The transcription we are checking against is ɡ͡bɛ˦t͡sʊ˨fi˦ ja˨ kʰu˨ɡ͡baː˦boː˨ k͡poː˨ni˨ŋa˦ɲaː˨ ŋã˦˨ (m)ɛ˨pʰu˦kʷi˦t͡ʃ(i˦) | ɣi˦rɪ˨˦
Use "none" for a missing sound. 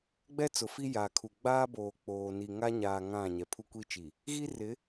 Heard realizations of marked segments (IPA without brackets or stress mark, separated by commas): ɲ, i˨